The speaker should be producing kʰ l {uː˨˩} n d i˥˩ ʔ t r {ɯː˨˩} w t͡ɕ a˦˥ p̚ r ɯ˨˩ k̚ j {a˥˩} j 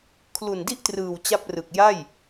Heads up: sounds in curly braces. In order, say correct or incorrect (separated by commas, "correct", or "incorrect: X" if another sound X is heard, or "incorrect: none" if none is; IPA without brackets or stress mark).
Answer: incorrect: u˨˩, correct, correct